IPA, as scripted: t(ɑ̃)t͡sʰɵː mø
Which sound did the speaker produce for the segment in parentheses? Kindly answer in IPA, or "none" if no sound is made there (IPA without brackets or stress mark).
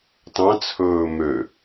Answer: ɑ̃